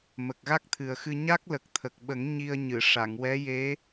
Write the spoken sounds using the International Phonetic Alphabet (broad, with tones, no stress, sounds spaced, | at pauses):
m ə˨˩ k̚ ɣ a˦˥ k̚ t̪ʰ ɨ˨˩ ə̯ x ɨ˧ ɲ a˦˥ k̚ l ə˨˩ k̚ t̪ʰ ə˨˩ k̚ ɓ ə˨˩˦ ŋ ɲ i˧ ə̯ ɲ ɨ˨˩˨ ʂ a˨˩˨ ŋ w ɛ˧˥ j e˧˥